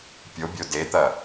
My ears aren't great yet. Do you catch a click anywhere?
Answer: no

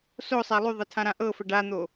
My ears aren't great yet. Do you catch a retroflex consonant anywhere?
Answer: yes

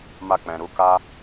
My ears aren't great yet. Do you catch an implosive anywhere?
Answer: no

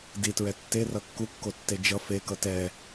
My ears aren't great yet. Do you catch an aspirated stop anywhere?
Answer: no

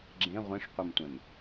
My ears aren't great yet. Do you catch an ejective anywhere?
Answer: no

